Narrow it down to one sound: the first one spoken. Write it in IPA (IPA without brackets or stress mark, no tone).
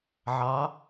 ʕ